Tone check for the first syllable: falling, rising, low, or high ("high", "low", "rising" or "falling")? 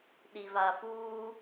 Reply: low